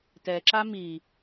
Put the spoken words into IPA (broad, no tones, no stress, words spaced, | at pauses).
tɛǁa mi